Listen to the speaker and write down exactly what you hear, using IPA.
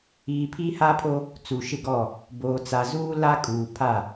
iː˨pʰi˦ha˦pʰo˦ | t͡su˨ʃɪ˦˨ɡɔ˦˨ | boː˨t͡sa˨zuː˦ la˦ kʼuː˨pʰa˦˨

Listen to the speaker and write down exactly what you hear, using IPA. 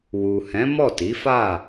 wu˨hɛ̃˨˦ mɔ˦˨ti˨˦fa˦˨

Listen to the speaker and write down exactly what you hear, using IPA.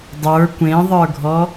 dˤə˞ kʷẽðˤə˞ɡʱɔ

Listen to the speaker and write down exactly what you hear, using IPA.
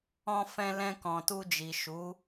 ɔ̃˧fɛ̃˧lɛ̃˧ kɔ̃˨tu˧d͡ʒi˨ʃu˨˦

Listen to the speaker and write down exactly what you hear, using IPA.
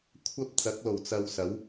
kʷʰɐ˥p̚ t͡sɐ˨˥k̚lo˨˩w t͡sɐ˧wsɐ˨˥w

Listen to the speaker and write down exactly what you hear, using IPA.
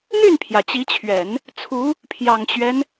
n̪y˥˩npʰjä˩ t͡ɕi˧˥t͡ɕʰɥɛ˨˩˦n | t͡sʰu˧˥ | pʰjɑ˨˩ŋt͡ɕɥɛ˦n

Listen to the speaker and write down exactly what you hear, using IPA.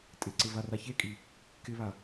tʼɪǀɪ varaçekʼi | kɪβa

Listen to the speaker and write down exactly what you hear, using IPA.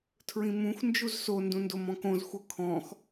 tʰɹĩmũx nd͡ʒuzso ndũndomɔ̃kõz xʷɤkʰɔ̃x

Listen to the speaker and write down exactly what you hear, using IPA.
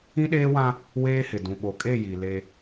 ĩ˦ɗeː˦wã˦ | weː˦hɪ˨ dũ˨ɓo˨kʼe˦˨ ji˨le˦

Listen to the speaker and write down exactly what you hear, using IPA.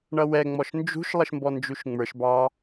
ɳʌwɛ ŋ͡mɔʃnd͡ʒṳʃ lˠəʃmbɔnd͡ʒuʃŋ͡mə˞ʃ bɑ

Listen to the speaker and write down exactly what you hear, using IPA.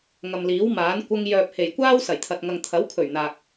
ŋɐ˨mliː˨˥wmaː˨˥n kʷɐ˧ŋ jœː˨p̚he˨˩jkʷaː˥w sɐ˨˩jt̪ʰɐ˨t̚ ŋɐ˨ŋt̪ʰɐ˨˥wkʰɵ˨˩ɥ n̪aː˨k̚

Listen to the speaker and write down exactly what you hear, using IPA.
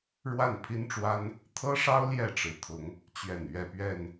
ɻwa˥˨npʰi˦nʈ͡ʂwa˦n | t̪ʰɤ˦ʂɑ˦ʊ̯ ljɛ˥˨ʈ͡ʂɻ̩˨˩t̪ʰʊ˨˦ŋ | t͡ɕɥɛ˨˩n ɥɛ˥˨pɥɛ˥˨n

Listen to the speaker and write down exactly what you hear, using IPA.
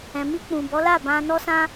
ɛ̃˨mi˧k͡pũ˨ bɔ˨˦la˦˨bã˧nɔ˦ sã˦

